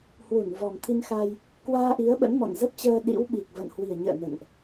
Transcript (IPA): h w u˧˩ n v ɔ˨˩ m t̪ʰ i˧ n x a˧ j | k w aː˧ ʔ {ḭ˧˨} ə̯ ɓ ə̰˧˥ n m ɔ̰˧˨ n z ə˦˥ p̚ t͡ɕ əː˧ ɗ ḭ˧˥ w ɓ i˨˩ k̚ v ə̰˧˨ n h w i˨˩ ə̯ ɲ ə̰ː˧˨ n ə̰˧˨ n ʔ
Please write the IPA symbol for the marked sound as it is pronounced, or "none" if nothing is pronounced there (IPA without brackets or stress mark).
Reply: i˨˦